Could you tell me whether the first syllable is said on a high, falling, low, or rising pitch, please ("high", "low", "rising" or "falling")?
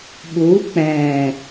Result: rising